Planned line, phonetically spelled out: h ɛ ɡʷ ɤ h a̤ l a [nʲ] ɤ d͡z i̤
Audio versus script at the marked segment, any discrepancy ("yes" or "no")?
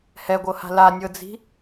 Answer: no